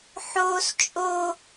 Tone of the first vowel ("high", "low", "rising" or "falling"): high